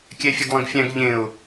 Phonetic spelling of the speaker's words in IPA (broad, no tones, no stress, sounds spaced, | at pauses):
kʲ ɛ fʲ ø ɡ lˠ ẽ ɡ fʲ æ̃ ɡ ʎ ẽ ʊ̯